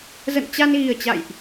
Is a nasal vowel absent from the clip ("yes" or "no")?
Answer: yes